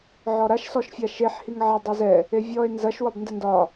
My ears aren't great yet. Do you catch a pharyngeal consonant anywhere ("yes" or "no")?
yes